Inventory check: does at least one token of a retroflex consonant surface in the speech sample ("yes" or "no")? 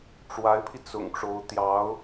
yes